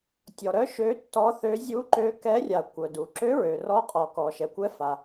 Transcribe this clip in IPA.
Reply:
tʲ ɔ˩ ɾ œ˧˥ ʃ ø˧˥ tː ɔ˧˥ θ ø˧˥ zʲ u˧˥ ǃ ø˧˥ k ɛ˧˥ rʲ a˩ kʷ œ˩ d u˩ ǁ ø˧˥ ɹ ø˩ r ɔ˧˥ qʼ ɔ˩ k ɔ˩ ʃ ɛ˩ kʷ ɛ˧˥ f a˩

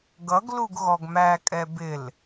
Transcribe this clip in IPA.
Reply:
ɡ ʌ ɡ l u ɡ ɣ ɔ ɡ m æ kʼ ɛ b ɪ l

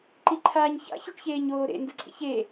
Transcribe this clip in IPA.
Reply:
ǃ i ǃʰ aː ɲ ç a̰ ç o ʈ ç eː ɲ oː ɾ ḛ n d ɯ ǀʰ ḭ ç e

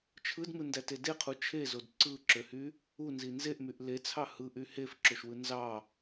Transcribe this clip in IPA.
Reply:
t͡ʃʰ ɯ d m ɯ n d æ t e d e qʰ u t͡ʃʰ e z o d ǀ ɯ ǁ ø h y | u n z i n z e ʔ m y ʔ l e t͡sʰ ɑ h ɯ ʔ y h e f ǁ o ʃ w ɯ n z ɑ

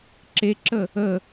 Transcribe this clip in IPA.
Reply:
ǁ e ǁ ə | ə

